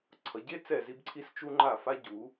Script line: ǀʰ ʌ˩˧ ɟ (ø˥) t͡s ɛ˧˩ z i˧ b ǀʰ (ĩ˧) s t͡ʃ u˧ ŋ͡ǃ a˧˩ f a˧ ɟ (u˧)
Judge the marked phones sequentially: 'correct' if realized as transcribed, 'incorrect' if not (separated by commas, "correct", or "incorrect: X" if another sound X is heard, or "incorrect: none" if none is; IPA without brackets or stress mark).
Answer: incorrect: e˥, incorrect: i˧, incorrect: u˩˧